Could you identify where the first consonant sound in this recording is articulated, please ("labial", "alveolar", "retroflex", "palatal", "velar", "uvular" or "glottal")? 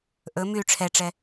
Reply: glottal